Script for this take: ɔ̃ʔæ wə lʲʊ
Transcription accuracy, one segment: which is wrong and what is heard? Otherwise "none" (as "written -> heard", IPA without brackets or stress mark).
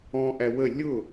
none